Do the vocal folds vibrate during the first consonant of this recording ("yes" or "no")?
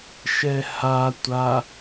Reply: no